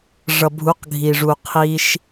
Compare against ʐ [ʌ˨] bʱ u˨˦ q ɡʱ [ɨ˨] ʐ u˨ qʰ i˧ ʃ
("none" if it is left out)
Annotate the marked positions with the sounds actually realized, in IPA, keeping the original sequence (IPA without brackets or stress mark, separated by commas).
ʌ˨, i˨